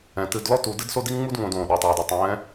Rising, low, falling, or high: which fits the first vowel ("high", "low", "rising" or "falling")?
low